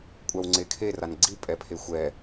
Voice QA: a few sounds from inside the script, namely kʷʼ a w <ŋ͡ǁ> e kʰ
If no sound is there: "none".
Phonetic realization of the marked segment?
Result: ŋ͡ǀ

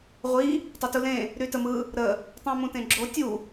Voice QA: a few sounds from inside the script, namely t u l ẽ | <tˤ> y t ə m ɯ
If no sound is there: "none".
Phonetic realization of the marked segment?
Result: ɾ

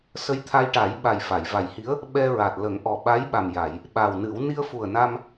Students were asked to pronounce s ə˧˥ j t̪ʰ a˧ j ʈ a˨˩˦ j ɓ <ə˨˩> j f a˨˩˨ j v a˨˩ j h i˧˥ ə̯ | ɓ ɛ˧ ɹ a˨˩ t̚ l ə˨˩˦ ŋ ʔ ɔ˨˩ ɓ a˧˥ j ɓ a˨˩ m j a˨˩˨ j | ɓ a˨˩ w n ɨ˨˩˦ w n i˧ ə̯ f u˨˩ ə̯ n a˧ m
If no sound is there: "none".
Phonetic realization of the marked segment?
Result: a˨˩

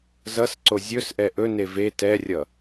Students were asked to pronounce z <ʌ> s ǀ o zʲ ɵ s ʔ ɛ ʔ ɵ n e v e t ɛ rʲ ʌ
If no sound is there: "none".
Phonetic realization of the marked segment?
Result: ʌ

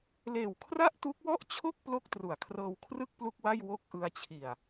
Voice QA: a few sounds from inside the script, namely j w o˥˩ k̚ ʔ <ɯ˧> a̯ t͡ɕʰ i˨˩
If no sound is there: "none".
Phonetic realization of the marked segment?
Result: ɯ˧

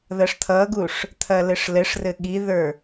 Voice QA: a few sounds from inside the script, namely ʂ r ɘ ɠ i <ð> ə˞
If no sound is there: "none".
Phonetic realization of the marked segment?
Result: ð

